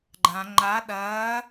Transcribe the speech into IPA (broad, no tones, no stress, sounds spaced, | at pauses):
ɡ͡ǃ ã ŋ͡ǃ a ɗ ɐː